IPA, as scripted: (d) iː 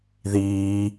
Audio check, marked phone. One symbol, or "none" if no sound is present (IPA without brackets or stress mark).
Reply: ð